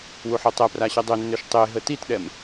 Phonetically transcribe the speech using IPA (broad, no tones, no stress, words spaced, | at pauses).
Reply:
wuħotˤɛpra ɕɛdˤønːøʃ tˤe ɦətitɗɛm